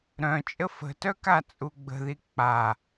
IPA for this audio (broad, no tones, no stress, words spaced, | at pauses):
ɾœ̃ t͡ʃʼəfə̤tœ kat͡sʼuɡ͡bə̤ði k͡pa